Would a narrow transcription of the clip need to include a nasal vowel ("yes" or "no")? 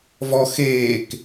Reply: no